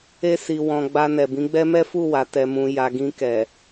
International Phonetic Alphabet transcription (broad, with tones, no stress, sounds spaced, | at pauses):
e˧ s i˨ w ɔ̃˨ ɡ͡b a˧ n ɛ˨ b ĩ˨˦ ɡ͡b ɛ˦ m ɛ˦ f u˦˨ w a˨ t ɛ˨ m ũ˨ j a˨ ɡ ĩ˧ k ɛ˨